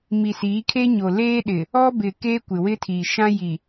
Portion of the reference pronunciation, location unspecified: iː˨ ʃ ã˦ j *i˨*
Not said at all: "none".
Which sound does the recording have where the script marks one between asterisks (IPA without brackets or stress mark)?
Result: i˨